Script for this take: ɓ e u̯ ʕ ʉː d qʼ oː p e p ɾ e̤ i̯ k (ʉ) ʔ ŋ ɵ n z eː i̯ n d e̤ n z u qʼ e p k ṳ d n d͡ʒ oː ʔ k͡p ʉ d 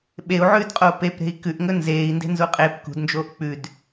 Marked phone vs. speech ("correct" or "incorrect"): correct